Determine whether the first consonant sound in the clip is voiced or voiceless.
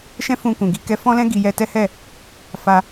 voiceless